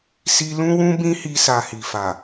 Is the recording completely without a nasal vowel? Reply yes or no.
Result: no